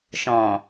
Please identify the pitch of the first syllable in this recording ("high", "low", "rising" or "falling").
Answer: low